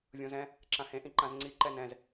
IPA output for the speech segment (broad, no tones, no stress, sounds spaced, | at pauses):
vʲ õ z ɛ̃ | ǁ ã h ẽ ʔ ĩ ǃ ã z ŋ͡ǀ i ǃ ɛ n ɛ̃ z